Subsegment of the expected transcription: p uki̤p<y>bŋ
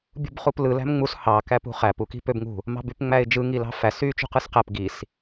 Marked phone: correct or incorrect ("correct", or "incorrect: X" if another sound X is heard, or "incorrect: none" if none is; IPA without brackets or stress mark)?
incorrect: ø